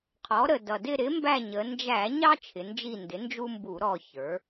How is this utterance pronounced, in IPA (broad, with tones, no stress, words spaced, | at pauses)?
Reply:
qʰɔ˩˥ ɾə˨˩ dʌ˨˩ dɪ˦˨ɾɪ˩˥ mbæ˦˨ɲə˩˧ nd͡ʒæ˧˩˧ɲɑ˦ t͡ʃʰɪ˩˧nd͡ʒi˦˨ ndɪ˩˥nd͡ʒu˦mbu˧˩˧ ɾɔ˦˨çə˞˩˥